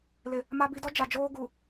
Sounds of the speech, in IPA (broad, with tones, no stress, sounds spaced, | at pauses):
l ɪ˨ | m a˦ b i˦ d ɔ˦ d͡ʒ a˨ d͡ʒ oː˦ ɡ u˨